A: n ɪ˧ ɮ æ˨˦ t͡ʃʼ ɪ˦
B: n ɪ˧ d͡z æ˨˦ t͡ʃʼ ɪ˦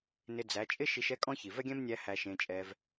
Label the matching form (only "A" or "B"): B